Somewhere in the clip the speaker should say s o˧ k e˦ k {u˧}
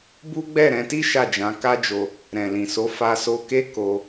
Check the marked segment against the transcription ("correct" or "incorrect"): incorrect